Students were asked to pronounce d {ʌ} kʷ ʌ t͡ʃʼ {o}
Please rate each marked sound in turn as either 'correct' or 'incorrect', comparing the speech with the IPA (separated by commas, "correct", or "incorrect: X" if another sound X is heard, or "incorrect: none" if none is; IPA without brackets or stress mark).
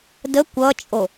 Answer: incorrect: ə, correct